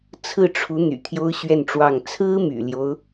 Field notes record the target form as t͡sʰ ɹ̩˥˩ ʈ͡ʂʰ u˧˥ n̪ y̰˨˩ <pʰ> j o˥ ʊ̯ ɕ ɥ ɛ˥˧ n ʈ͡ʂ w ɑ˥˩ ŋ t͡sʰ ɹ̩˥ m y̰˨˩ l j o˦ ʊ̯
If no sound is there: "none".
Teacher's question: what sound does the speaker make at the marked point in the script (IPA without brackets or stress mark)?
t̪ʰ